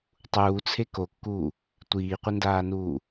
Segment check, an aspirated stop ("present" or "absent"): present